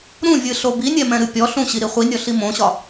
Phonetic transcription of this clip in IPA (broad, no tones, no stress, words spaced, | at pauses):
ɾũvʲɨɬo binʲɛmɛ̃ɾɨ pʲɔ ɬũɕiɾi χʷinʲɔɬi mõɕɒ